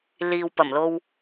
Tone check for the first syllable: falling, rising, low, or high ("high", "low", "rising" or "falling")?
low